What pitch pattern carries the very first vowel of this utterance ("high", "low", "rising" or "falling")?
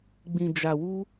low